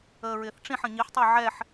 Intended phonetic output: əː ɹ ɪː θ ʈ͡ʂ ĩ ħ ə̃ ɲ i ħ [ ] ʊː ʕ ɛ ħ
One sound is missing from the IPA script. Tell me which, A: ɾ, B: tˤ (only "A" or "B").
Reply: B